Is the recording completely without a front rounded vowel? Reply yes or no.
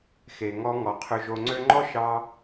no